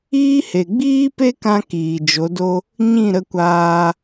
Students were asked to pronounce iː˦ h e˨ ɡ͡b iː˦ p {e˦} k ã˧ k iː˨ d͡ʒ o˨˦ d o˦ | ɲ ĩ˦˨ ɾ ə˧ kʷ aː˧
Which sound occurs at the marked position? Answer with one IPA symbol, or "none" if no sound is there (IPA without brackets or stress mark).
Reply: e˦